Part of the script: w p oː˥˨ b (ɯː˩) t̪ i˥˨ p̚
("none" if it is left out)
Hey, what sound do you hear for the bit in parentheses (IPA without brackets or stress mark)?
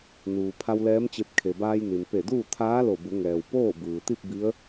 ɯː˩